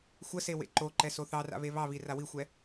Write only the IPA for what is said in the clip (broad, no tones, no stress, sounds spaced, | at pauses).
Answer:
xʷ ə s e w ḛ ǃ o ǃ ɛ s o θ ɑ r a̰ β e β ɑ β i r a w i xʷ ɛ